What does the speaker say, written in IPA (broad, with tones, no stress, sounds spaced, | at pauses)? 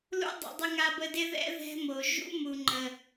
l ṵ˦ dˤ ṵ˨ dˤ ə˧ ŋ a˧ b ə˧ d ɪ˦ ð ɛ̰˦ ð ɛ̤˦ m o˨ ʒ ṵ˦ m u˨ ŋ͡ǃ ə˨